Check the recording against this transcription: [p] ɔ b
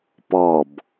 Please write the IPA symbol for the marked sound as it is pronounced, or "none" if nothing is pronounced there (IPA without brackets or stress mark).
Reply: p